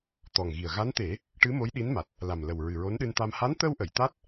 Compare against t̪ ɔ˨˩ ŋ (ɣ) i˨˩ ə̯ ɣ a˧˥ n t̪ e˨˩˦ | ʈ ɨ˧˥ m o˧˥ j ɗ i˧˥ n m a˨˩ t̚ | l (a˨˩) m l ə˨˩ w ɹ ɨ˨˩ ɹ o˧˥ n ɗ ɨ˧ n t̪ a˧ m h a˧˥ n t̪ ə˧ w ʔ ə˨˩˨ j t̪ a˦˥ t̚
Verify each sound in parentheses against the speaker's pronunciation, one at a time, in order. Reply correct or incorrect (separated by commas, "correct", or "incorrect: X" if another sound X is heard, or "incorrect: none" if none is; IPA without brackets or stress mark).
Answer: correct, correct